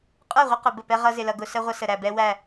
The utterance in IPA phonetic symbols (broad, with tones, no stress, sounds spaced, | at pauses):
qʼ ə˞˦˨ ʁʷ ɪ˦ q ʊ˨ b ə˦˨ p ɛ˦ ʁ ʌ˦ z ɪ˦ l ʌ˦ ɡ ʊ˦ s ə˦ ʁʷ ə˦ s ə˨ ɾ æ˨ b ɛ˦ w æ˦˨